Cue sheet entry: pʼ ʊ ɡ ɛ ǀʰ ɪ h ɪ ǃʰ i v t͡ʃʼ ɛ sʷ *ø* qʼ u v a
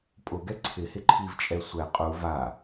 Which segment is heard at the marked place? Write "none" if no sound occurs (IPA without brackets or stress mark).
ɛ